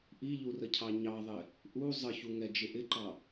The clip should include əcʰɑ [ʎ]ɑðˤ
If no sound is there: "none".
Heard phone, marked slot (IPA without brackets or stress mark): ɲ